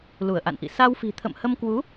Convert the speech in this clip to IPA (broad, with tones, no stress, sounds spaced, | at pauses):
l u˧˩ ə̯ ʔ a̰˧˨ n ʔ ḭ˧˨ s a˧ w f i̤˨˩ t̪ʰ ə̰˧˨ m h ə˧ m k w u˨˦